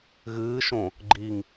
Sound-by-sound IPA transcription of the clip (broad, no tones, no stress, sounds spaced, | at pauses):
ɣ ɨː ʃ õ | ɡ͡ǃ i ŋ